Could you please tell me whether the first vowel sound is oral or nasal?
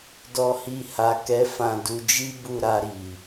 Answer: oral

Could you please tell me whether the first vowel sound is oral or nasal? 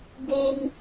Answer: oral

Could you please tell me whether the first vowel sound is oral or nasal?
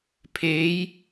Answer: oral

